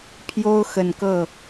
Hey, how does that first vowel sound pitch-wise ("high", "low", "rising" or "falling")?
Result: high